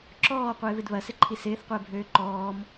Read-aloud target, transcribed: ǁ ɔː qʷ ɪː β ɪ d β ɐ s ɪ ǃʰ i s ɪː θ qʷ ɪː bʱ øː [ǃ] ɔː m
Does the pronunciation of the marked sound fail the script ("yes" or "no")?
no